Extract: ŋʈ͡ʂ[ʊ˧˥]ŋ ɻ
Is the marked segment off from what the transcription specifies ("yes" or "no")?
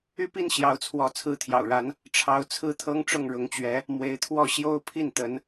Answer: yes